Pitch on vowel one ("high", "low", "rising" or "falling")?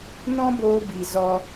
high